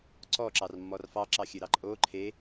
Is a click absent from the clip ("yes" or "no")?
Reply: no